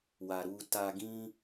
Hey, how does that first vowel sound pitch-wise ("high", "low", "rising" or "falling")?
low